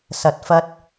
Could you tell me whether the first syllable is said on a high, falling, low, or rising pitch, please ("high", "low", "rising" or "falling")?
low